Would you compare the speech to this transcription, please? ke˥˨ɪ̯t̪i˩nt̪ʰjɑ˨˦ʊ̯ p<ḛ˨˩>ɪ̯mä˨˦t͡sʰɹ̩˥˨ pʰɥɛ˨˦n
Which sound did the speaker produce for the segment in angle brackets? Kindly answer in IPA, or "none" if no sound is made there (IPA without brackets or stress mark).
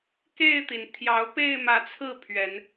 e˥˨